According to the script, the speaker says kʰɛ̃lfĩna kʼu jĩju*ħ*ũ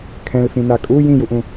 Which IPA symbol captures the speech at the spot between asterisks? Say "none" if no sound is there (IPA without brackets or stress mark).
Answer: ʔ